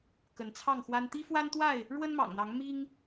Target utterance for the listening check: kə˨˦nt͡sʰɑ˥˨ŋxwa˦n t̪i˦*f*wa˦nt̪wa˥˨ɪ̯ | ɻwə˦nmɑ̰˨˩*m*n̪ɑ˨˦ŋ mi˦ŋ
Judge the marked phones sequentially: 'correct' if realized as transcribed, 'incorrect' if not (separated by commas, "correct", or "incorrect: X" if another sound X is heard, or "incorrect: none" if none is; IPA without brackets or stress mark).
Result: correct, incorrect: ŋ